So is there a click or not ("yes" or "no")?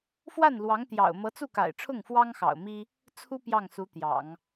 no